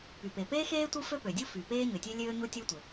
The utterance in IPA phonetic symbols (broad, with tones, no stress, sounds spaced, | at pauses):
p y˩ p e˩ p eː˥ x eː˥ tʷ ɯ˥ f ø˥ p ø˩ dʲ u˥ f y˩ p eː˥ ɲ ø˩ tʲ ø˥ lʲ øː˥ ɲ u˥ tʲ o˥ tʷ e˩